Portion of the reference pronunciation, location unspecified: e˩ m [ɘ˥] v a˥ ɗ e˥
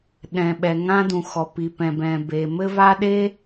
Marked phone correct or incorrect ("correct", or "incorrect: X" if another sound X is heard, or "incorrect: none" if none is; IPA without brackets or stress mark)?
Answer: correct